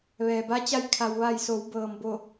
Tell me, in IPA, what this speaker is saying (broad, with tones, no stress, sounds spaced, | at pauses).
ʋ ɛː˩ b a˧˥ t͡ɕ a˧˥ j kʰ a˩ w ʋ a˧˩ j s o˩˧ w b ɤː˩ m b o˧˩